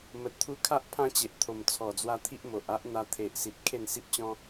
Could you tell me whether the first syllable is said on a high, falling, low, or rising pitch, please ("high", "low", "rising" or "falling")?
low